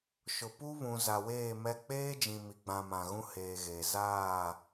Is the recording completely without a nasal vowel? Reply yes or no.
no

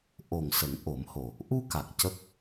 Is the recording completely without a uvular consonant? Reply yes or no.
yes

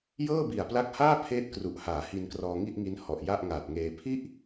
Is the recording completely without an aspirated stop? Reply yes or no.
no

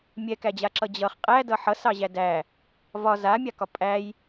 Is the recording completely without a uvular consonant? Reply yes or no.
no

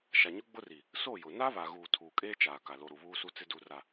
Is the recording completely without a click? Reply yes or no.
yes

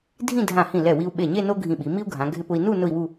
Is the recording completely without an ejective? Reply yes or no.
yes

